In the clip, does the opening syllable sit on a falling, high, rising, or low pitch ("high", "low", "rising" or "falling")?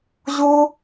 high